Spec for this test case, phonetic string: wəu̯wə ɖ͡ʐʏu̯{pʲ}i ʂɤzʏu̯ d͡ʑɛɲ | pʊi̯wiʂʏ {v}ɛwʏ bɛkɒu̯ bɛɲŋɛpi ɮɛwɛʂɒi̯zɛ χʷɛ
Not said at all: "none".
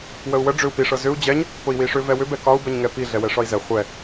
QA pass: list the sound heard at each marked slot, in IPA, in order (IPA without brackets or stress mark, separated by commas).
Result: p, v